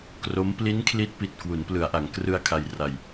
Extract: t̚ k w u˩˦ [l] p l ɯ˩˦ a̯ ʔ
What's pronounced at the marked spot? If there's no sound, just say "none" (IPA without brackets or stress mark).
n